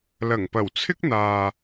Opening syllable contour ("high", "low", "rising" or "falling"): low